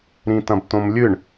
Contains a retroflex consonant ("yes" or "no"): yes